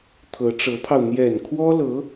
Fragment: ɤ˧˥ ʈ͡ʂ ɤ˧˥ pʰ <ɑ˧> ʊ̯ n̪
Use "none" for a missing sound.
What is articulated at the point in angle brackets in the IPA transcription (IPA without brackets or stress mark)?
ɑ˧